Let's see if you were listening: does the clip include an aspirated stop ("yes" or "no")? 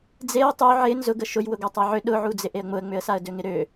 no